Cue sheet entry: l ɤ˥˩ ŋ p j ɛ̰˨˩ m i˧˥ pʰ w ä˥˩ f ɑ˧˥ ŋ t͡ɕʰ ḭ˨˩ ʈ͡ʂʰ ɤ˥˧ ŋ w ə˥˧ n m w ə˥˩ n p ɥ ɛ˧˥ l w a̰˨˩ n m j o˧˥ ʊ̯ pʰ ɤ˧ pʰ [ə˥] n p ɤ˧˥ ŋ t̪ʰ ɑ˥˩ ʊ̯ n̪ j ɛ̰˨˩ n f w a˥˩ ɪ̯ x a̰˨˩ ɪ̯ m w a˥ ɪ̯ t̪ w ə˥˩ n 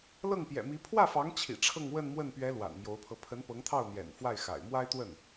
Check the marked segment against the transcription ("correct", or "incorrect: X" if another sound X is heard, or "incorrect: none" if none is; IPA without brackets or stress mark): incorrect: ə˧˥